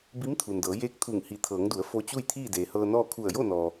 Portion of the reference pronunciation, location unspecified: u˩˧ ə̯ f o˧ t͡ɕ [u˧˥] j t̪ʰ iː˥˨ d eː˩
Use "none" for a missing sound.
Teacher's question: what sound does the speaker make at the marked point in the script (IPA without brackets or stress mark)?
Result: u˥˨